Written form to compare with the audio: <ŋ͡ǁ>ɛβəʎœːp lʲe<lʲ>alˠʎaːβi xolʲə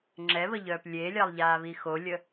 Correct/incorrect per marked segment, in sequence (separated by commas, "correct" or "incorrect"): correct, correct